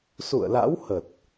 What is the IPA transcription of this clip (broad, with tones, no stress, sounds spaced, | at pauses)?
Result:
s ṵ˧˨ ə̯ l a̰˧˥ w h ə˨˩ t̚